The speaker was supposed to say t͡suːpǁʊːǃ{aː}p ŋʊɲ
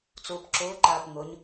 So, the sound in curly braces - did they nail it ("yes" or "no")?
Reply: yes